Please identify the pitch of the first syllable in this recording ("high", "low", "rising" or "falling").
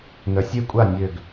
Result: low